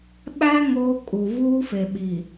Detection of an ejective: present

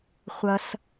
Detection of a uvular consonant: present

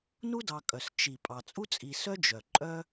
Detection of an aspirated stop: absent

